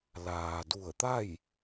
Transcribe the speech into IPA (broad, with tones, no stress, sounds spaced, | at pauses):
l aː˩ d u˧˩ ə̯ t̪ a˥˨ j